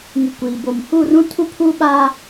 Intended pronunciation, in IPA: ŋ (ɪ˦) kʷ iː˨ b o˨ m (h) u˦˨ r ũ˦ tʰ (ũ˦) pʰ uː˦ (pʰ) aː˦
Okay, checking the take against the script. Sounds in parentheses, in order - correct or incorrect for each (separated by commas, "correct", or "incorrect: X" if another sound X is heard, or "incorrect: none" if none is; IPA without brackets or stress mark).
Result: incorrect: ɪ˨, correct, incorrect: u˦, incorrect: ɓ